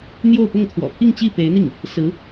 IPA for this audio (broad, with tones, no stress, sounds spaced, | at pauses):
n̪ j o˥˧ ʊ̯ p ʊ˥˩ ŋ t̪ʰ w ɔ̰˨˩ pʰ i˥˧ ŋ t͡ɕ i˥˩ p e˧˥ ɪ̯ n̪ i˥˩ ŋ | s ɹ̩˧˥